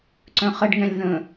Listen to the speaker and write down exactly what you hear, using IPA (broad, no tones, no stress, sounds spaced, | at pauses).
ǀ œ̃ χ ə ɖ ŋ ɛ̃ lʲ ð ə̃